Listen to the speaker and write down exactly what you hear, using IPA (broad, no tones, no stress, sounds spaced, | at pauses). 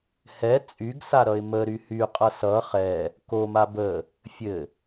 h ɛ t͡sʼ y ɡ s a ɾ ʌ ɪ̯ m ə ɾ y h y qʼ ʌ s ʌ χ ɛ | k o m a b ə | fʲ ɘ